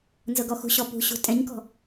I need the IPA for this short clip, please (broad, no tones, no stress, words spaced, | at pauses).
nzɤɡɔxṳɕɔ pṳɕṳ tʼɛ̃ɲkɔ̤